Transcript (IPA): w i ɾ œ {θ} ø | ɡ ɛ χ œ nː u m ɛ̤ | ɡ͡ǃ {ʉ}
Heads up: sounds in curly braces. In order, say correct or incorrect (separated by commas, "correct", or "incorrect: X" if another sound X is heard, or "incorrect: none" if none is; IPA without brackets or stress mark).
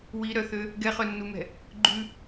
correct, correct